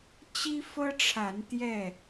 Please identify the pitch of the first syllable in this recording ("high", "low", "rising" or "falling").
high